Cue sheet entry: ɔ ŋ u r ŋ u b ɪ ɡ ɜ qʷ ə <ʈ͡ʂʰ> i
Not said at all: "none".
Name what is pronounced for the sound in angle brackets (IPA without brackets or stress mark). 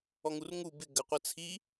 t͡sʰ